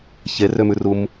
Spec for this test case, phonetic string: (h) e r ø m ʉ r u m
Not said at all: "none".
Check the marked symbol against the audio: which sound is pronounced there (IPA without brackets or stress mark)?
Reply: ç